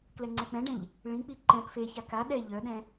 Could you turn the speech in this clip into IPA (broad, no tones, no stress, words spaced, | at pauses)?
klɛŋ͡ǀɛk͡pɛ̃ɖɛ̃ʎ | ɭĩk͡pi ǃɛ̃p feça ka ɗɛ ʎœɗɛ̃